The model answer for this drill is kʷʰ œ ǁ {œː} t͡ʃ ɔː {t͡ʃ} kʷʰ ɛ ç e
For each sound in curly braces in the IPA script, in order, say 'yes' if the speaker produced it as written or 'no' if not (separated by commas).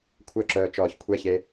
yes, no